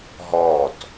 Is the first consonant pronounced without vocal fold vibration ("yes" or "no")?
no